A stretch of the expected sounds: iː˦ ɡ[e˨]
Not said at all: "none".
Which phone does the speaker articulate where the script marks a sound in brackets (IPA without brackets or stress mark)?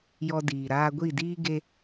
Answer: e˧